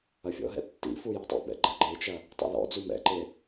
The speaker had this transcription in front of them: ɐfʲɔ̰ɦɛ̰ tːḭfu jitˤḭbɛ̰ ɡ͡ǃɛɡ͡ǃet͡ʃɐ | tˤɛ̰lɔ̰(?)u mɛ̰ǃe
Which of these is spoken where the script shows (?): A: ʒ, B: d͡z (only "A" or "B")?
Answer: B